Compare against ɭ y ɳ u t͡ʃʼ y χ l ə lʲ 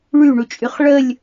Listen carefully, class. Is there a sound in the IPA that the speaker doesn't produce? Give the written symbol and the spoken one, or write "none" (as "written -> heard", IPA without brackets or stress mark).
l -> ɭ